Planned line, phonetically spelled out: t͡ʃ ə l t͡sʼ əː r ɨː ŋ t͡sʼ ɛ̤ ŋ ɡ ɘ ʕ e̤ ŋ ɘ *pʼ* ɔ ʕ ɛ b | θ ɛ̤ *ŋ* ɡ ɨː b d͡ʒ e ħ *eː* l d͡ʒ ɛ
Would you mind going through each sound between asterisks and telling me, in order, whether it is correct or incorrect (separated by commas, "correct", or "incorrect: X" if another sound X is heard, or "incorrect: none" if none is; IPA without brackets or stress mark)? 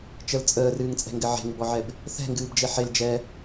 incorrect: b, correct, incorrect: e